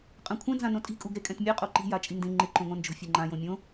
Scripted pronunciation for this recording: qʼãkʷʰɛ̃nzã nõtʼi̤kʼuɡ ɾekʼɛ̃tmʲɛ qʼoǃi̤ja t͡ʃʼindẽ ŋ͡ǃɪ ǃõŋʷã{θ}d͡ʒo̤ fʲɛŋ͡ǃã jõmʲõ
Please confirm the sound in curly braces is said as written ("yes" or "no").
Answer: no